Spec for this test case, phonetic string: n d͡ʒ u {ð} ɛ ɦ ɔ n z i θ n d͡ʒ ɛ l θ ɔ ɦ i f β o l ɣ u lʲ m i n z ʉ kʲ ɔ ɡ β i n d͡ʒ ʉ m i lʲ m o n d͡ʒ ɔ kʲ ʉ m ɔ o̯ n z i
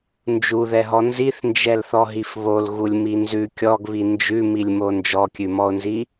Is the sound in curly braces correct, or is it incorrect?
correct